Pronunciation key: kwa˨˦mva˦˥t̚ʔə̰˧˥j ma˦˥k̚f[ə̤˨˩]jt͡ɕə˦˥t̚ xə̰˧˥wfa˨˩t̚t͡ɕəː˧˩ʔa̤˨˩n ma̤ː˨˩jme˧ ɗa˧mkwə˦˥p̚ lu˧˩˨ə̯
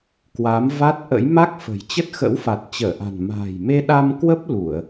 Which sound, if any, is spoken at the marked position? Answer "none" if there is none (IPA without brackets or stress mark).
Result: ə̤˨˩